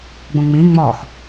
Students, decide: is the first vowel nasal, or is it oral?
nasal